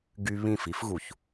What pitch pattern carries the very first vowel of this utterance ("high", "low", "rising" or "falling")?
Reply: high